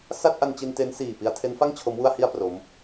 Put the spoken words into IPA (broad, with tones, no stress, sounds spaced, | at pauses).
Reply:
s a˥˩ t̚ ʔ a˧ n t͡ɕ i˧ n t e˦˥ n s iː˨˩ p i˧ a̯ tʰ e˦˥ n f a˥˩ ŋ t͡ɕʰ o˦˥ m w u˥˩ a̯ h i˥˩ a̯ p r o˦˥ m